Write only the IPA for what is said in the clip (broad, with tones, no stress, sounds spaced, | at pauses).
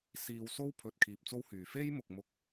s iː˧ w s o˥ w pʰ ɵ˨ t̚ kʰ iː˧ p̚ t͡s o˥ w h yː˨ f e˥ j m ʊ˨ k̚ m ʊ˧ k̚